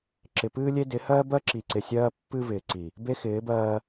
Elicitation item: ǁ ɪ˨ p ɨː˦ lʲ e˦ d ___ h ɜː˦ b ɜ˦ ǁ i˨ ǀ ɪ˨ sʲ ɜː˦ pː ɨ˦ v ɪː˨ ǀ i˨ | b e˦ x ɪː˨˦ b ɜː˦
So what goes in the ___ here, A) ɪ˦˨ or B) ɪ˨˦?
B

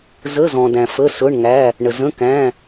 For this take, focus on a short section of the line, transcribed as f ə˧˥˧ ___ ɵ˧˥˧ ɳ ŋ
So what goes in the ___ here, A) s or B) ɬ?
A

